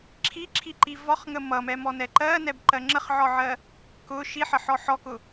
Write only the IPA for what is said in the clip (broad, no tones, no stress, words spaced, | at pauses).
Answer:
ǁʰiǁʰiǃi vɒχŋə mʌmɛmɔnɛ ǃɜnɛbǃɜ ŋ͡ǁəχʕɒʕɜ | kʊ ʃiħəħɔ ħɔkʊ